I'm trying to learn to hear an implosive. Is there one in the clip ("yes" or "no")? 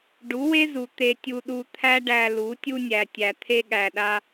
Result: yes